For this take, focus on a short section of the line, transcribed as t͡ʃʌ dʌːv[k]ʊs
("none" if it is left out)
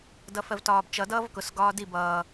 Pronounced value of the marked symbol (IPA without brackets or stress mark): k